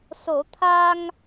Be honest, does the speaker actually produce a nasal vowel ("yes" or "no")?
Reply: no